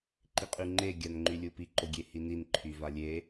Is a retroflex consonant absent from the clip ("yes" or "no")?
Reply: yes